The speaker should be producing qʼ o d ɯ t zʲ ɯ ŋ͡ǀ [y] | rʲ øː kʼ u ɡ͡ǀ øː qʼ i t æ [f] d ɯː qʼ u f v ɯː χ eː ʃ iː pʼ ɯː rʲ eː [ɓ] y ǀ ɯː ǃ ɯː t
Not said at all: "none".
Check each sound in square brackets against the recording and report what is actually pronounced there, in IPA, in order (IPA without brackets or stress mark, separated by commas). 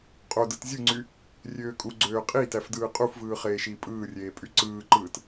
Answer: y, f, pʼ